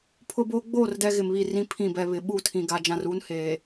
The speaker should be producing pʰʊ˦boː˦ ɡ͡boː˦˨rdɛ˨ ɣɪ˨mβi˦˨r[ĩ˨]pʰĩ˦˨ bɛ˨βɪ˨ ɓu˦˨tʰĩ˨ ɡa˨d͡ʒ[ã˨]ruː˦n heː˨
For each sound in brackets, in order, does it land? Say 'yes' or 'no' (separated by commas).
no, yes